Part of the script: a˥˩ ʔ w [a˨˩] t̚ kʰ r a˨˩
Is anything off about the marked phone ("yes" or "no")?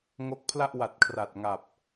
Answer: no